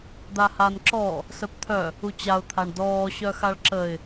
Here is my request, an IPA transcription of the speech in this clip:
d̪ a h a n ǁ ɔ | s œ p t̪ʰ œ | u t͡ɕ a ʊ̯ t̪ʰ a ɳ d ɔː ɕ œ x a ɭ ǁ ə ɪ̯

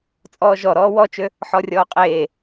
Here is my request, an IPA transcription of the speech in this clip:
t͡sʼ ɔː ʒ ɔ ɾ ɔː w ɔ t͡ʃ ø | ħ ɔ rʲ ɔː qʼ eː

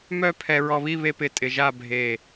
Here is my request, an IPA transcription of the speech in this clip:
m œ˥˧ pʰ ɛ˧ ɹ ɔ˧ β i˥˧ β e˥ p ɪ˧ tʼ ɪ˧ ʒ a˥˧ bʱ e˧˩

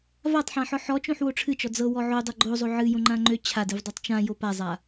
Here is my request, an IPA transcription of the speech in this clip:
v a tˤ ħ ã ħ ɔ ħ ɔ t͡ʃ õ ħ w o ʈ͡ʂʰ ɨ t͡ʃ ɔ d͡z ɤ w ɔ ʕ o dˤ ɤ ɡ͡ǃ o zˤ o ʕ ɨ j õ ŋ͡ǃ ã ŋ͡ǃ ø t͡ɕʰ a d ɨ v dˤ ɤ tˤ t͡ʃ ã j o p a zˤ a

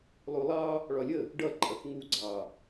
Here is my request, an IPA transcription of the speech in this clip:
lˠ u lˠ ɑ | ɭ ɒ lʲ ə | ɖ ʌ ǃʼ ʌ θ ŋ u ɡ͡ǀ ɑ

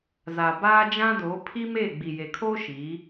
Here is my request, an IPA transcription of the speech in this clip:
z a˨ b aː˦ d͡ʒ ã˦ d oː˨˦ pʰ i˦ m e˦˨ ɡ͡b i˨ j e˨ kʰ oː˦ ʃ i˨˦

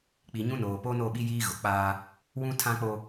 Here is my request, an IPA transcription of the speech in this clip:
k͡p i˨ ɲ ũ˦ n oː˨ p o˦ n o˦˨ ɓ i˦ j iː˦ ɣ ʊ˨ k͡p aː˦ | w ũ˦ tʰ ã˦ k͡p o˦

